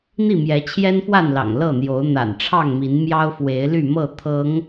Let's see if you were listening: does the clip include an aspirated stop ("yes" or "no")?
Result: yes